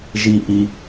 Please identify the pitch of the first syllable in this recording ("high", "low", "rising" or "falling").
high